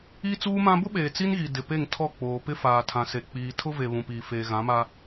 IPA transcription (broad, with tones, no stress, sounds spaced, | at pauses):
i˦ t͡s uː˦ m ã˦ b ʊ˦ ɓ eː˨ t͡s i˦ n ɣ i˨ d ɪ˨ p e˦˨ ŋ tʰ ɔ˦˨ k͡p oː˨ p ɪ˦ f aː˨ tʰ ã˨ s e˨ k͡p iː˨ tʰ ʊ˦ v e˨ β ũ˨ p iː˨ f eː˨ ɣ ã˨˦ m a˦